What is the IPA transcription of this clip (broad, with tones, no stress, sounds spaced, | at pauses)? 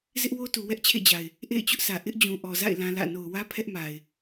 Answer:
z ɪ˦ ʔ w o˦ t u˨ w ɛ˦ ʔ t͡ɕʰ ḛ˦˨ d͡ʑ a˨ ɪ̯ | ʔ ḛ˦˨ ɪ̯ t͡ɕ ʊ˦ ʔ s ä˨ ʔ ɪ˦ ʔ d͡ʑ ũ˨ ʔ ɔ˨ z a̰˦˨ ɪ̯ l ã˦ l ä̰˦˨ n o˨ ʊ̯ w ä˦ pʰ ɛ˦ ʔ m a˨ ɪ̯